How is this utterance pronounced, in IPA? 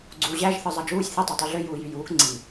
ɡ͡ǀ uː ʑ æ ʒ θ ɯ zˤ ɑ d͡ʒ uː sʲ θ i tˤ e tˤ y ɮ ø j uː j y j uː k ŋ͡ǀ i

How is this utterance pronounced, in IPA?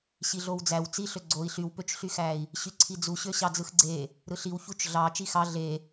ɕ i ɮ o w d͡z æ w t͡s i ɬ ø ɡ͡ǀ o i̯ ɬ y w p ø t͡ʃ ɬ y x æ i̯ | ɕ y ǀʰ i d͡z u ɕ ø ɕ ɑ d͡z ɯ x ɡ͡ǀ e | ɾ ɯ ɬ i w ç u t͡ʃ ɮ ɑ t͡ʃ i x ɑ ɮ e

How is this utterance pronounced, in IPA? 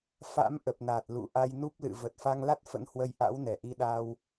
f a̰˧˥ m ʔ ə˨˩ p̚ n a˨˩ t̚ l ṵ˧˨ ʔ a˧ j n u˦˥ p̚ l ɨ̰˧˨ v ə˨˩ t̚ f a˧ ŋ l a˦˥ t̚ f ə̰˧˥ n h w ə˨˦ j ʔ a̰˧˥ w n ɛ˧˩ ʔ i˧ ɗ a˧ w

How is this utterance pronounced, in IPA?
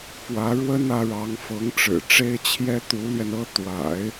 f w ä˧˥ ɻ w ə˥ n ä˧˥ ɻ ɑ˧˥ ŋ f ɤ˧˥ ŋ ʈ͡ʂ ɻ̩˨˩ ʈ͡ʂ e˥ ɪ̯ t͡ɕʰ j ɛ˥ t̪ u˧˥ l ɥ ɛ˧ n ɤ˥ t̪ w a̰˨˩˦ ɪ̯

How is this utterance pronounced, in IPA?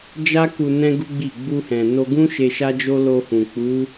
d͡ʒ a˦ k u˧ n ɛ̃˦ ɡ u˦ ɡ͡b i˦˨ ɡ͡b u˧ h ɛ̃˨ n o˧ ɡ ũ˦ ʃ e˧ ʃ a˦ d͡ʒ o˦ l o˧ h ũ˨ k͡p u˨˦

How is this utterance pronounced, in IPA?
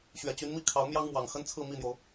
ɕ ɥ ɛ˨˩ t͡ɕ y˧˥ n m i˥˩ kʰ ɑ˧˥ ʊ̯ m j ɑ˥ ŋ m w ɑ˨˩ ŋ x ə˥ n t͡sʰ ɹ̩˥˧ m i˥˩ n̪ j o˩ ʊ̯

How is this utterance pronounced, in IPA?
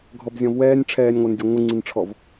ɡʱ ɔ b zʲ ɔ̃ v w ɛː nʲ ʈ͡ʂʰ ɛː nʲ ŋʷ ə˞ n dʲ ə˞ ŋʷ ɨ ŋ͡ǀ i n ʈ͡ʂʰ ɔ v

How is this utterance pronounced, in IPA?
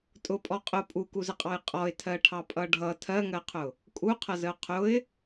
tʼ ʊ pʼ ɔ qʼ ʊ pʼ u k u z ə qʼ ɑ j qʼ ɔ ɪ̯ tʰ ɜ ʈʰ ɑ pʼ ʌ ɖʱ ʌ tʰ ɜ ŋ ɜ qʰ ʊ | kʼ u qʰ ʌ z ə ʊ̯ qʰ ʊ ɪ̯

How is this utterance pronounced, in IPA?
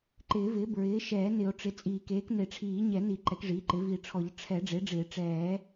ǃ ɪː˨˩˦ v ɪː˩˥ b ɹ ɪː˩˥ ʃ ɛː˨˩˦ n ɪ˨˩˦ o̯ ʈ͡ʂ ɪ˩˥ t͡sʼ iː˨˩˦ k eː˩˥ k n e˨˩˦ ʈ͡ʂʰ iː˨˩˦ ɲ ɛ˨˩˦ n i˨˩˦ ǃ ɛ˩˥ k ʐ iː˩˥ ǃ ɪ˩˥ v i˨˩˦ ʈ͡ʂʰ ɔ˨˩˦ ʎ ʈ͡ʂʰ ɛ˨˩˦ ɖ͡ʐ e˩˥ ɖ͡ʐ ɪː˨˩˦ ʈ͡ʂ ɛː˨˩˦

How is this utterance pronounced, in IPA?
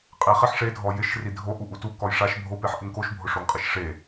qʼ e χ ɪ ħ ʂ e dʱ ɔ j ɪ ʃ r i dʱ o ʔ u ʔ u t u k ɔ j ʂ a ʃ bʱ o p e ħ ʔ ɪ ŋ k o ʃ bʱ ʊ ʂ o ŋ qʼ ɪ ʃ ʂ e

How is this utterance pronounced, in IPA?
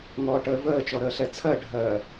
ŋ ɔː ʈ əː v əː t͡ʃ ɔ ɾ əː ɬ ɛ t͡sʰ ɜ ɖʱ ɜː

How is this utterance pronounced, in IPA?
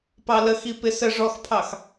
p ɑ l ə x i p ɪ s ə ʐ ɔ x pʰ ɑ x

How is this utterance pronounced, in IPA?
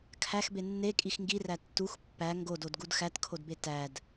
kʰ æ x b e nː e kʼ i x ŋ ɡ i r æ tː u x pː æ ŋ ɡ o d o d ɡ u d x æ t kʰ o d b e t æ d

